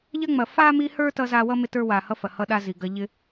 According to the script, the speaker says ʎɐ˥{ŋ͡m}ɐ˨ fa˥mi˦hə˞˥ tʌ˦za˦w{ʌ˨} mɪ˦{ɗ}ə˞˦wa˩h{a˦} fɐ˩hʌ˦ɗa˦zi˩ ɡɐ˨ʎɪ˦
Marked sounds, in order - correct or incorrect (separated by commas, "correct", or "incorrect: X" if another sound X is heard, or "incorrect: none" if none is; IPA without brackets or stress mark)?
correct, incorrect: ʌ˥, incorrect: t, incorrect: ʌ˦